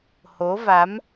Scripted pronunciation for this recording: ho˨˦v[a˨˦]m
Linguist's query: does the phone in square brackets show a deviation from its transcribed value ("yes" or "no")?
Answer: no